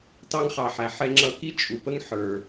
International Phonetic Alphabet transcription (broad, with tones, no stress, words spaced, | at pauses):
tɑ˧ŋχɑ˩ħæ˩ ħɛ˧ŋ͡ǁʌ˧ki˥ t͡ʃʼu˩pə˥ŋ ħə˞˩